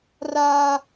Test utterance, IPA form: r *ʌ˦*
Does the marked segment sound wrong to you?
yes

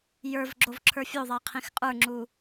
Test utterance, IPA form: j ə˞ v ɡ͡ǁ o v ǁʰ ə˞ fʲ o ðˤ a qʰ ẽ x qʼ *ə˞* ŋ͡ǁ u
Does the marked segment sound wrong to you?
no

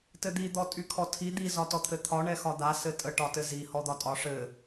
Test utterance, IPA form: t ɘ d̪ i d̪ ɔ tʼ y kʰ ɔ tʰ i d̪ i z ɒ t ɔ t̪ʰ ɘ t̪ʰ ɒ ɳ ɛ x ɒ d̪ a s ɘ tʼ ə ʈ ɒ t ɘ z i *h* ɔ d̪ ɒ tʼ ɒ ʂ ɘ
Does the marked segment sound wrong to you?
no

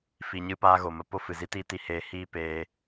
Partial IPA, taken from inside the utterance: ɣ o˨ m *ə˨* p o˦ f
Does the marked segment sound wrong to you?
no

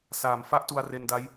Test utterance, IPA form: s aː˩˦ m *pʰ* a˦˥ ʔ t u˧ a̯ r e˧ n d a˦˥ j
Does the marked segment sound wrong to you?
yes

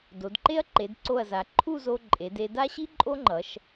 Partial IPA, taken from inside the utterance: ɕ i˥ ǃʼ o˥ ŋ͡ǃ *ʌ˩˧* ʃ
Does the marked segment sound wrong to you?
no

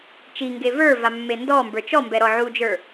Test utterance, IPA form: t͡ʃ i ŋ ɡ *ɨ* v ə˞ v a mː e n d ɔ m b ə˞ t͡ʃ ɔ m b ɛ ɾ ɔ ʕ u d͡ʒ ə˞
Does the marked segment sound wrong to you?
yes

